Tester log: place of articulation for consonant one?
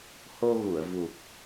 glottal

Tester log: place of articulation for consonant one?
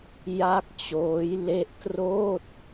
palatal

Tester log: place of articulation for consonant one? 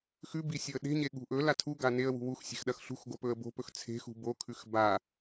velar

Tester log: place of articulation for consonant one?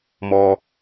labial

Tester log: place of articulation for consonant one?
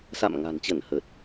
alveolar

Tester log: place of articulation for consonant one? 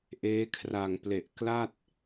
glottal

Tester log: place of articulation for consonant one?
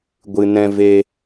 velar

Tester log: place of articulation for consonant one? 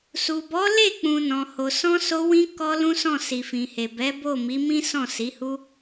alveolar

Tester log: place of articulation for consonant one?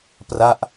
labial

